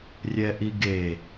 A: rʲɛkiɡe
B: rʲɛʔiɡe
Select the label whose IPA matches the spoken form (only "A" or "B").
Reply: B